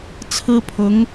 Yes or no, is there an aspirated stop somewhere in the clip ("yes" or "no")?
yes